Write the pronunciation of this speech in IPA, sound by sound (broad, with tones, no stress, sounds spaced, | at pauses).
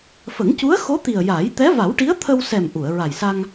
f ə˨˩˦ ŋ c u˧˥ ə̯ x o˧˥ t̪ i˨˩ ə̯ j a˨˩˦ j t̪ ɛ˧˥ v a˨˩˦ w ʈ i˧˥ ə̯ t̪ʰ ə˧ w s ɛ˨˩ m ʔ u˨˩˨ ə̯ ɹ a˨˩ j s a˧ ŋ